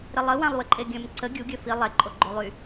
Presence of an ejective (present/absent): present